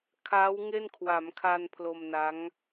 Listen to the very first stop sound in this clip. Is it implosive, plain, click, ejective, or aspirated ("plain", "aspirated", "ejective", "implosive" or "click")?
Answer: aspirated